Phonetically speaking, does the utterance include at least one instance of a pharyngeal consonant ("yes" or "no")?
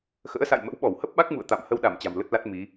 no